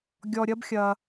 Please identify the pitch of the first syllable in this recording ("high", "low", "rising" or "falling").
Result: low